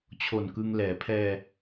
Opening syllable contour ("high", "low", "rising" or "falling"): low